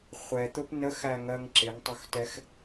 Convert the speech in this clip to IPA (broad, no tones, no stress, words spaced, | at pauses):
χʷɛt̪ʊp nəxæŋɜŋ ǁɪŋtˤʊxtɛx